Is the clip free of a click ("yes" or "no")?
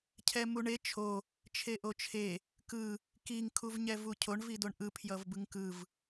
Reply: yes